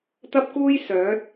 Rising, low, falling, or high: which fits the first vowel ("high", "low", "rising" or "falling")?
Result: high